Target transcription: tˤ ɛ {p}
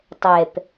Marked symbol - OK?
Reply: yes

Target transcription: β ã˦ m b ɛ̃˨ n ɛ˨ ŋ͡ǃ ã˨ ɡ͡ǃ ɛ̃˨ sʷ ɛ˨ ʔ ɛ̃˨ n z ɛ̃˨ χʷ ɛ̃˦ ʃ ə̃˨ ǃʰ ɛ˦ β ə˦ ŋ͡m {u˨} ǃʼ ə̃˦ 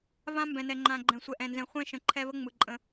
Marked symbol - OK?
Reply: no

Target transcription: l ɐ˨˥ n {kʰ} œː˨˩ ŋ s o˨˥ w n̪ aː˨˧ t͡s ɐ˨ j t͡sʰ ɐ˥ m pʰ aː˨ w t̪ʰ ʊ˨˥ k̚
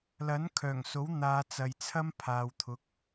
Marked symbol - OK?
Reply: yes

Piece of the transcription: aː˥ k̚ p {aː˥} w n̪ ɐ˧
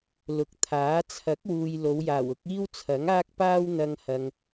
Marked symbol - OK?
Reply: yes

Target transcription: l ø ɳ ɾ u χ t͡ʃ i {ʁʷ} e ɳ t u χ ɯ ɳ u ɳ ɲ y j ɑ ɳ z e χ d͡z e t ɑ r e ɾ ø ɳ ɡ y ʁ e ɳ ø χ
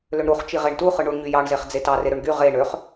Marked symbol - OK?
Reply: no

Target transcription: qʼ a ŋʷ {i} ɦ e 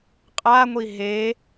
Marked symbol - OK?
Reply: yes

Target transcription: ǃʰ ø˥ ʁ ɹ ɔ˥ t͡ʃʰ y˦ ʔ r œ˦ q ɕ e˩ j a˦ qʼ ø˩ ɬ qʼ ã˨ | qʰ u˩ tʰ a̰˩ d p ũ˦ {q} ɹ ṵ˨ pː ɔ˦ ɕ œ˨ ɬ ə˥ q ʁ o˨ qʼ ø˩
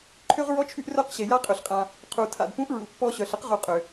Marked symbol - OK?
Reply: no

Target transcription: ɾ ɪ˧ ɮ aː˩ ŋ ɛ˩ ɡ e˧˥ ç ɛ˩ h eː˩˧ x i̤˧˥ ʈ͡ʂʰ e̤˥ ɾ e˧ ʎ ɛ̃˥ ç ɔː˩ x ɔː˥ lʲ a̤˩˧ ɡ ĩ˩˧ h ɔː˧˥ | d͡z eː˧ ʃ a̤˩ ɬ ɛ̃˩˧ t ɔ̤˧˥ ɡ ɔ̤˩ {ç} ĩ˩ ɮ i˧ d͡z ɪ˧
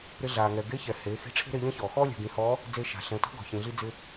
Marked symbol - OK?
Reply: yes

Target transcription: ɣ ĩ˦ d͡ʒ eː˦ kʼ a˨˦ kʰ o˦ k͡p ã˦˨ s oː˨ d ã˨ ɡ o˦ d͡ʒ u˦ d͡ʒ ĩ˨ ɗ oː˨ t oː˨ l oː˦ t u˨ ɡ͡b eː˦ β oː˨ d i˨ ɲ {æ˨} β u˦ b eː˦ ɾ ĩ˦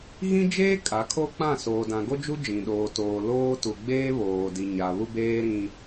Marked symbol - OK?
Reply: no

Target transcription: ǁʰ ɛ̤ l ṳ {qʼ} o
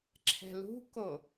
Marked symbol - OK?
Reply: no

